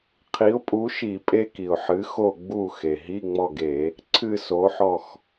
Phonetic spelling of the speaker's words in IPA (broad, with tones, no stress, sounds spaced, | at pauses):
qʰ i˨˥ ʊ̯ pʼ u˨˥ ʃ i˧˩˧ pʼ e˦˥ k i˩ ʊ̯ ħ ɨ˨˥ x o˦˨ ɡ͡b u˦˨ x e˩ ɦ i˧˥˧ ŋ͡m ɔ˦˨ ɡ e˧˩˧ | ǀʰ ɨ˦˨ s o˨˥ ħ ɔ˦˨ x